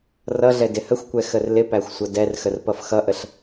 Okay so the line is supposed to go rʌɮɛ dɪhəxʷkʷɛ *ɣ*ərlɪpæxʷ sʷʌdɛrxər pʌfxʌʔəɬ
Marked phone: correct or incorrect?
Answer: incorrect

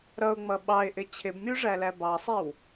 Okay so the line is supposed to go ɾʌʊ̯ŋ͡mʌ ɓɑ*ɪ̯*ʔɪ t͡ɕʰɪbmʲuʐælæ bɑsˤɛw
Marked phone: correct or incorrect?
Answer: correct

